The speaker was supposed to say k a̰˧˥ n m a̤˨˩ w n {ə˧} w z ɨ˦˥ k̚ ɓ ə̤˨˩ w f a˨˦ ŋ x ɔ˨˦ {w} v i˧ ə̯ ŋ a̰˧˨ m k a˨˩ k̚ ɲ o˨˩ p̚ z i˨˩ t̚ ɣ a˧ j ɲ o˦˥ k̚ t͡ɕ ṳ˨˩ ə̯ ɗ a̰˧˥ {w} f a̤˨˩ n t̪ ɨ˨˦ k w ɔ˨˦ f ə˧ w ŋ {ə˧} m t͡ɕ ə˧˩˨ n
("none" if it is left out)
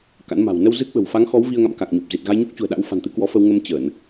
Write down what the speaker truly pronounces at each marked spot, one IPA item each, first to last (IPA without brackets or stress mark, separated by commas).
ə˧, w, w, ə˧